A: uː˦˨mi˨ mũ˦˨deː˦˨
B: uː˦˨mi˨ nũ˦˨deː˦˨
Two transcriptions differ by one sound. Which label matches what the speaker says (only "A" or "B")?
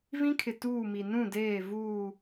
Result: B